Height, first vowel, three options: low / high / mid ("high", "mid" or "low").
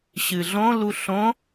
high